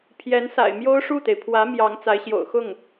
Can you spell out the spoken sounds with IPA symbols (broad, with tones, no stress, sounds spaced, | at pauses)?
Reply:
pʰ j ɛ˧˥ n s a̰˨˩ ɪ̯ m j o˥ ʊ̯ ʂ u˥˩ t̪ e˩ ɪ̯ pʰ w ä˧˥ m j ɑ˧˥ ŋ t͡s a˧˥ ɪ̯ ɕ j o̰˨˩ ʊ̯ x ʊ˥˩ ŋ